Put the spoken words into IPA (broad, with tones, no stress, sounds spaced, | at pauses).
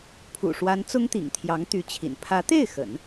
pʰ ṵ˨˩ ʂ w a˧˥ n t͡s ʊ˥ ŋ t̪ ḭ˨˩ ŋ t̪ʰ j ɑ˧˥ ŋ t̪ y˧˥ t͡ɕʰ ḭ˨˩ n pʰ ä˧˥ t̪ e˥˩ ɪ̯ x ə̰˨˩˦ n